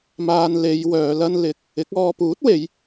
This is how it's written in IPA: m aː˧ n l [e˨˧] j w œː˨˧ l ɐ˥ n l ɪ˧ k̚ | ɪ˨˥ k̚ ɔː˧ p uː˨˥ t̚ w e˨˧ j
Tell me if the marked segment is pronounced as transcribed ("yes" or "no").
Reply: yes